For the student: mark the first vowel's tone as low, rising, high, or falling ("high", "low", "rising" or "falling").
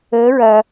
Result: rising